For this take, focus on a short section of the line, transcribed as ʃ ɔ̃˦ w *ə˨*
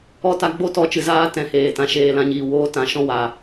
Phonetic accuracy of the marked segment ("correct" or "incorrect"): incorrect